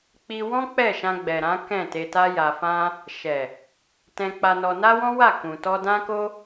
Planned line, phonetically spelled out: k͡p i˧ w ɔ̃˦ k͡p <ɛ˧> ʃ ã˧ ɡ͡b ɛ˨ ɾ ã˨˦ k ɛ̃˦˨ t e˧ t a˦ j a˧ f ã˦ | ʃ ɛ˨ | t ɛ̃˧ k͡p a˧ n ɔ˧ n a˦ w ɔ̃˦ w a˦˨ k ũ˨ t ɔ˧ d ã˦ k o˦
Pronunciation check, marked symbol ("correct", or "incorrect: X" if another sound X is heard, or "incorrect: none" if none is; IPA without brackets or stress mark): incorrect: ɛ˦˨